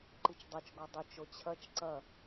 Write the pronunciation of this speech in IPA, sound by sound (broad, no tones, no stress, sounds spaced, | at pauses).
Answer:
ǃ i t͡ʃ dˤ o t͡ʃ ɡ ɔ dˤ ø t͡ʃ o t͡ɕʰ ɐ t͡ʃ ǀ ɐ